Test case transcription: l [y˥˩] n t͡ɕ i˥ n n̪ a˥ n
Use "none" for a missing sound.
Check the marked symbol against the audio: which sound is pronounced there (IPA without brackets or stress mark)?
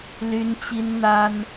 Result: y˥